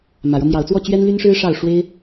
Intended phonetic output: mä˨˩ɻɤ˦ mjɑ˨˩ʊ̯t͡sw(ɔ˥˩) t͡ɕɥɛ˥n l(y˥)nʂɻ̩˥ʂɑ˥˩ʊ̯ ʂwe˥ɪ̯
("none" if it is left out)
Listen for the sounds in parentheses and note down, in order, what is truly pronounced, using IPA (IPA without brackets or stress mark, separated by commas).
ɔ˥˩, y˥